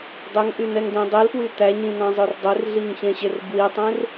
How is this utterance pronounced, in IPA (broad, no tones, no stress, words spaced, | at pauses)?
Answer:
dˤɵŋʔyn̪ɛŋdɛ̃ dˤilpwy t̪æɲĩn̪ɑ̃zˤɵr dˤerɮiŋçẽɕer bwitˤẽr